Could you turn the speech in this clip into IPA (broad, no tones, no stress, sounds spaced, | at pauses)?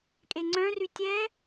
kʼ e ŋ͡ǀ œ̃ r y tʲ ɛ